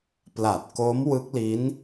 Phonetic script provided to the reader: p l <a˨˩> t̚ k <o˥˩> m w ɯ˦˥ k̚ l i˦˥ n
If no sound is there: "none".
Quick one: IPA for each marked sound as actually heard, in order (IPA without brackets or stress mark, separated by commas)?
a˨˩, o˦˥